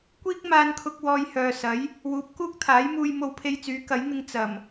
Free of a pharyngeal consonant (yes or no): yes